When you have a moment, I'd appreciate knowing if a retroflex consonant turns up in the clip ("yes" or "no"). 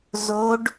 yes